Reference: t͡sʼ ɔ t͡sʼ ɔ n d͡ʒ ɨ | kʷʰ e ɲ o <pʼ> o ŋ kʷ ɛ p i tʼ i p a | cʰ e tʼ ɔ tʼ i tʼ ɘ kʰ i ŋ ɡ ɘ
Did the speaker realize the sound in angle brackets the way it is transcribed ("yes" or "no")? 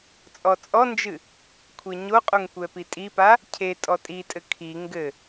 no